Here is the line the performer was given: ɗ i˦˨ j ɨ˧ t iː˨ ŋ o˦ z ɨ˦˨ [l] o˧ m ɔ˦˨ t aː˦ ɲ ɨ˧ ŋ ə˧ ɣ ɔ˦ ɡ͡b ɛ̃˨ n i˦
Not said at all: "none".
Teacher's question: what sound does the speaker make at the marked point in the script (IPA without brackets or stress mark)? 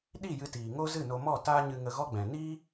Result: n